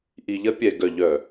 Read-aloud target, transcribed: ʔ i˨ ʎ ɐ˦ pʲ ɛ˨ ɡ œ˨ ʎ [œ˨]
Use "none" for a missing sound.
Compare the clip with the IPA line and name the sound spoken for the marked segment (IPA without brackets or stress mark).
œ˨